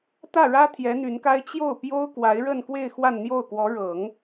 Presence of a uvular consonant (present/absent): absent